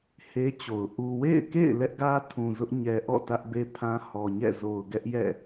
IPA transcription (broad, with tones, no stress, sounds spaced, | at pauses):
h e˦ t͡ɕ o˨ ʊ̯ ʔ u˨ w ḛ˦˨ ɪ̯ k ḛ˦˨ ɪ̯ l ɛ˦ ʔ ɡ ä˦ tʰ ũ˨ z ʊ˦ ʔ ɲ ɛ˨ ʔ ɔ̰˦˨ t ä˦ ʔ b e˦ pʰ ã˦ h ɔ˨ ɲ ɛ̰˦˨ z o˨ ʊ̯ ɡ ɛ˦ ʔ j ɛ̰˦˨